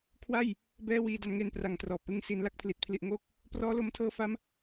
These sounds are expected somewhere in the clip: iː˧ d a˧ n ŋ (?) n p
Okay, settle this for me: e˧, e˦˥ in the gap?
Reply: e˧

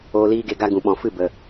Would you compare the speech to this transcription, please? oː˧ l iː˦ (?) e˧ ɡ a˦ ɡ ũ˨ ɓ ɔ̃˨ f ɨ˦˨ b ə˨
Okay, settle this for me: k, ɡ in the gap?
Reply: ɡ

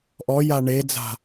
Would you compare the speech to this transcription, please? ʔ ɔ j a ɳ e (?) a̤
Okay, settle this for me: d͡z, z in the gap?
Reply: d͡z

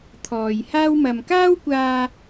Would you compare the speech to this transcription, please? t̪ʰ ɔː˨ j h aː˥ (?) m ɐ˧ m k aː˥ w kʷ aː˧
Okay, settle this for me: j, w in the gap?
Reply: w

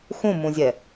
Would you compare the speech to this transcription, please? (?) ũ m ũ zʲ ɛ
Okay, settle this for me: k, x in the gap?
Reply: x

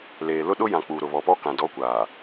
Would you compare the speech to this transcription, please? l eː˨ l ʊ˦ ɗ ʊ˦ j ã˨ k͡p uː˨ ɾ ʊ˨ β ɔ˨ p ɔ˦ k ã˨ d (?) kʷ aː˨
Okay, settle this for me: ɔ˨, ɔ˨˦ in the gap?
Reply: ɔ˨˦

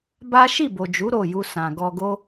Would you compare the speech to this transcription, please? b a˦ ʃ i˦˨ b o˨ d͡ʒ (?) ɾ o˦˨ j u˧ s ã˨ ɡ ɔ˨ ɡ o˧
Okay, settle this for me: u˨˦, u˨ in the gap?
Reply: u˨˦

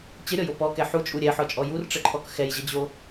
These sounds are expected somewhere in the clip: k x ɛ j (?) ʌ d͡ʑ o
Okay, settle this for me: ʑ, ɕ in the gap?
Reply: ʑ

